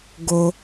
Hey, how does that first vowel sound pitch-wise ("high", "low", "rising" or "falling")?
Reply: low